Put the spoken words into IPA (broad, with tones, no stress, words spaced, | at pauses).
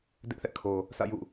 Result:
dɪ˦ʔθɛ̰˦˨kʰo˨ | sä̰˦˨jṵ˦˨